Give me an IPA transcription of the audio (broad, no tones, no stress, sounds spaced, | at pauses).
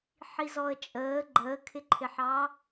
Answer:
ħ i z ɔ ə̯ t͡ʃʼ əː ɡ͡ǃ əː kʰ ɪ ǃʰ ɪ ħ ɑː